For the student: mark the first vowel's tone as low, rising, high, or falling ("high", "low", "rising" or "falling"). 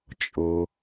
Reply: high